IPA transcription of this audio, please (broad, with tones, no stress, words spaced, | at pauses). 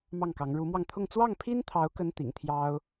mɑ˥˩ŋkɑ˧˥ŋ ɻu˧˥mwɑ˧ŋt̪ʰʊ˥˧ŋ t͡swɑ˥˩ŋpʰi˥nt̪ʰɑ˧˥ʊ̯kə˧˥n t̪ḭ˨˩ŋt̪ʰjɑ˥ʊ̯